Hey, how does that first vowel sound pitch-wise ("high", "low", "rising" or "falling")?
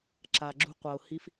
low